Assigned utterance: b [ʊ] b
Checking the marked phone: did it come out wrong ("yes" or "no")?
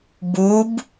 yes